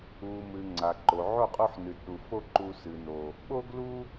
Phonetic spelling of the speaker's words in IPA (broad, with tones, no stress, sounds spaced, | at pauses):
u˨ m ɨ˨ ŋ͡ǀ a˨ ǃ o˨ ʕ o˦˨ qʼ u˧ ħ n ɨ˨ d ɗ u˨ f o˦ ǃ u˧ s ɨ˨ n o˨ | ɓ o˦ ɡ l u˦